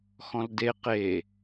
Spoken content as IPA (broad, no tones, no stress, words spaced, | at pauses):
xɔ̃lde qe